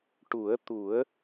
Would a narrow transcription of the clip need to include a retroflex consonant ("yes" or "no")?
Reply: yes